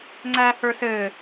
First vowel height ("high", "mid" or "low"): low